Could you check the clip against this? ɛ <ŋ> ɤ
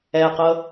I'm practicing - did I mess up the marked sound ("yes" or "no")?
yes